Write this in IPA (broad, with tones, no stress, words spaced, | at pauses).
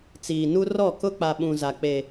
t͡siː˨nu˦ rɔ˦˨kʊ˦ k͡pa˨ɓũ˨za˨ k͡pe˦